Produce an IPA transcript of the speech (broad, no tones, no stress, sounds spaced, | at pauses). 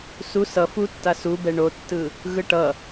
s u s ʌ f u tː a s u b ɛ ɳ o tː ɯ | ɣ ɯ ʈ ʌ